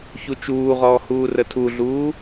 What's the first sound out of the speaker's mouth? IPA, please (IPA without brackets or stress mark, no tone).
ç